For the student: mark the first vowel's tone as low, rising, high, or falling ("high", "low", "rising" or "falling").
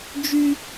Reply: high